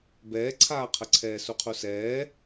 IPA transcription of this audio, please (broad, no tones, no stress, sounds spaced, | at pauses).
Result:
b ɛː ǀʰ aː qʰ ə ǀʰ ɛː s u qʰ u s ɛː